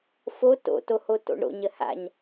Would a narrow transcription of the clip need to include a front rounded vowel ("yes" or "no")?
no